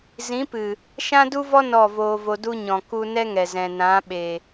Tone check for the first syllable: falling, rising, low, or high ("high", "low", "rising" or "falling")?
rising